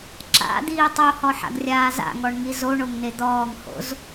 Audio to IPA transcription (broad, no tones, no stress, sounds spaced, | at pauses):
ǁ a̰ d̪ iː tˤ o h ɔ ħ a̰ ɡ rʲ aː z a̰ ŋ ɔ ɳ ŋ i z o ɳ o ŋ n e d̪ ɔː ŋ h o̰ z